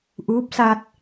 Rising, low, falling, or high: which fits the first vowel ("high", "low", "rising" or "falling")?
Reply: rising